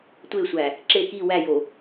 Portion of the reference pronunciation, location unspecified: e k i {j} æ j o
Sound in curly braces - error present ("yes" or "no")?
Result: yes